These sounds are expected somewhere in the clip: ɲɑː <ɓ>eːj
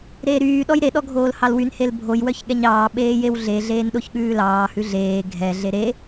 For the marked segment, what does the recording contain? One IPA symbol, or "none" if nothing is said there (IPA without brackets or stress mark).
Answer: ɓ